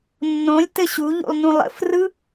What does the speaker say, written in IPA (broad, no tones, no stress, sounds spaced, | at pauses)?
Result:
nː õ lʲ t ɘ ɕ u ʎ ṵ lˠ n ũ lˠ ə̰ f r ɯ